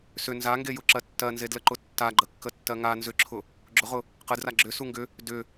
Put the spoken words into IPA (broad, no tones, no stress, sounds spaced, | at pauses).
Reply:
s ʏ n z a ŋ ɡ e j ʊ ǁ ɜ tː ɜ n z e d l ə ǃ ʊ tː a ɡ͡ǃ ə kː ə tː ɜ ŋ a n z ʏ ǁʰ ʊ | ɡ͡ǁ ʊ ʁ ʊ | q ə d r a ɡ͡ǁ ʏ s u ŋ ɡ ʏ | d ʏ